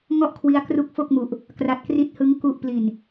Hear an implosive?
no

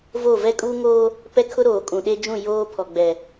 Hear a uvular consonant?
no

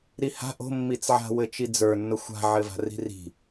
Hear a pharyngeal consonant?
yes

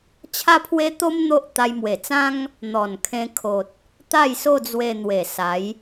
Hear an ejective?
no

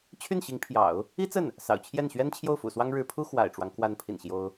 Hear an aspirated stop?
yes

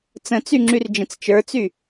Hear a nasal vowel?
yes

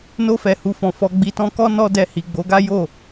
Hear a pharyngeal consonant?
no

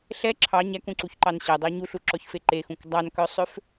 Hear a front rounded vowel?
yes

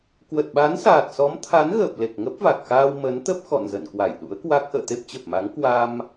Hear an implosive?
yes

